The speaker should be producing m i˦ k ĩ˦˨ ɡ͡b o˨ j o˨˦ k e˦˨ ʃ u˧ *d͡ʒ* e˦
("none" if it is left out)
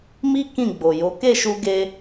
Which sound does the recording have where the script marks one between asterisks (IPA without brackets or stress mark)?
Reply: ɡ